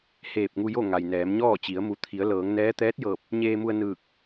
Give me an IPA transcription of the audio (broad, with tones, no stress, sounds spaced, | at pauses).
h eː˧˩ p̚ ŋ u˧ j o˥˨ ŋ a˩ j n ɛː˩˧ m ɲ ɔː˥˨ t͡ɕ i˩˧ ə̯ m u˩˧ t̪ʰ i˩˧ ə̯ l ɤː˩˧ ŋ n ɛː˧˥ t̪ ɛː˧˥ t̚ j ɤː˧˩ p̚ | ɲ eː˧ m u˧ ə̯ n ɯː˧˩ k̚